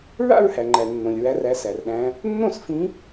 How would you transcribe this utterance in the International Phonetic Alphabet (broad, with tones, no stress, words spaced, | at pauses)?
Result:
ɹa̰˥˧ɹhæ˩ŋ͡ǃæ˩ nːõ˩lʲɹæ˨˦r æ˨˦sæ˩rɗæ̃˨˦ | nːõ˥˩sfĩ˨˦